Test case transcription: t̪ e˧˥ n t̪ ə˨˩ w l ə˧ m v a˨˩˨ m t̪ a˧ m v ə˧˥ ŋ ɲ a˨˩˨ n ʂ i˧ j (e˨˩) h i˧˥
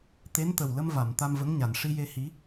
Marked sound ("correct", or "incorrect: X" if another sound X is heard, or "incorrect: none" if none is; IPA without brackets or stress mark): incorrect: e˧